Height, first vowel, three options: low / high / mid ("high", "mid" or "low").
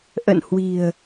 mid